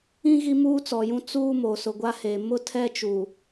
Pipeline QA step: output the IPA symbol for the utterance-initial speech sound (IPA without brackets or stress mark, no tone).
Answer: ĩ